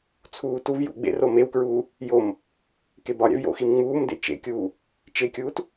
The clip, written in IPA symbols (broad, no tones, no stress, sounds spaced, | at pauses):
t͡sʰ uː t u v j ṵ ɡ͡b ḛ r o m e w k ɹ uː | j o m | k e b ɒ ɾʲ æ̰ v j o̰ x i m ŋ͡m uː m d ḛ t͡ʃ ḛ kʲ uː | t͡ʃ e kʲ uː t